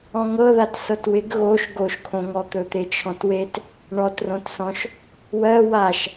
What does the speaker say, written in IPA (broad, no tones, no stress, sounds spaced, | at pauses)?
ɔ̃ ŋ ɤ ð a t s ɤ t w ɪ ɡ ɣ o ʃ ɡ o ʃ kʰ õ ŋ ɔ t̪ ɵ t̪ e t͡ʃʰ ɔ̃ t w e t | ɳ ɔ t r õ t s ɔ̃ ʃ | w ɜ w a ʃ